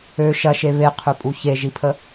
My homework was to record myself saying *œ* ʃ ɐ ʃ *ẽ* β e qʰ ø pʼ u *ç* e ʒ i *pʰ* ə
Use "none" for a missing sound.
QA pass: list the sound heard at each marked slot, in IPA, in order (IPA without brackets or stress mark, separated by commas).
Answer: ø, e, ç, pʰ